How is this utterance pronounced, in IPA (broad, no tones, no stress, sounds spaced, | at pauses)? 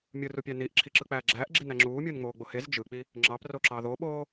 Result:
mʲ ɯ r u pʲ æ n i ʔ ǁʰ i ǁ ɯ k͡p æː ɡ͡ǁ æː ʔ ɡ͡ǁ i n æ ŋ͡ǁ uː mʲ ɯː n ŋ͡m oː ɡ͡b o h e z d͡ʒ ɯ k͡p i | ŋ͡ǁ ɑ p r o ǁ ɑ ð o ɓ oː